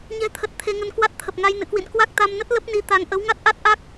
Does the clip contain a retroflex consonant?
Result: no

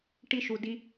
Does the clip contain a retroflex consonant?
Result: yes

